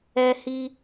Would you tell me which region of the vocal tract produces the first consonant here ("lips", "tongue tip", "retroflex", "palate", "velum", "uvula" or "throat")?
throat